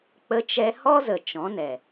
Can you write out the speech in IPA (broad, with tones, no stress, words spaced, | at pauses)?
k͡pə˧t͡ʃɛ˧ hɔ˦zə˨ t͡ʃɔ̃˨˦nɛ˨